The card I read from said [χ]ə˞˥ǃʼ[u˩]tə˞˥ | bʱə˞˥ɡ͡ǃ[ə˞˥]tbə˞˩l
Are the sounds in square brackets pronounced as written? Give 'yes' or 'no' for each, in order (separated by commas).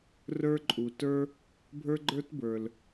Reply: no, yes, yes